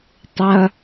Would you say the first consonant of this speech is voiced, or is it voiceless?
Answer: voiceless